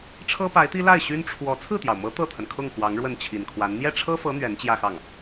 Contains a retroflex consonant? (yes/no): yes